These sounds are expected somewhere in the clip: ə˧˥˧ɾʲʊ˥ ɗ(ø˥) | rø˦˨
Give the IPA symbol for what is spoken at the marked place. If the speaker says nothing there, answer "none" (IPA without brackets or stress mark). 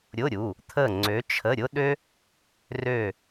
ø˥